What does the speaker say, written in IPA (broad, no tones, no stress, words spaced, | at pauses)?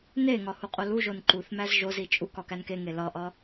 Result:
neŋɒ huqʼoluʒon ǃuθ mæzʒozi t͡ʃʼuk ɒkænkeŋe lɒʔɒ